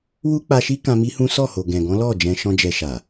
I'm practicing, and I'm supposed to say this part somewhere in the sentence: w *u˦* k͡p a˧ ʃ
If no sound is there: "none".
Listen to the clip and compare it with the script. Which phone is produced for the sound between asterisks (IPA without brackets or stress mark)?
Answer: u˦